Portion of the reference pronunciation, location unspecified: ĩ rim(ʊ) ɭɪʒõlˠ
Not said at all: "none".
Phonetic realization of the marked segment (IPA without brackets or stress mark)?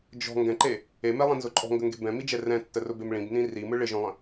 ɯ